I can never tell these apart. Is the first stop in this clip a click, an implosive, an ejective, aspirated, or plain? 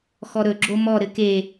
click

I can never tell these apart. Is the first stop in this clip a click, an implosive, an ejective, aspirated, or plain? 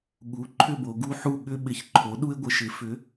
implosive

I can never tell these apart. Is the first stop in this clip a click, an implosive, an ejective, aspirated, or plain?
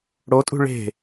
ejective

